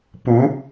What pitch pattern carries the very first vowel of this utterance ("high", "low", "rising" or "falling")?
rising